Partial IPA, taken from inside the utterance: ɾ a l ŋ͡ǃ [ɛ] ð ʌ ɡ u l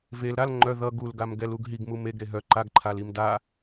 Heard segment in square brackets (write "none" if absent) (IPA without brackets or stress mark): œ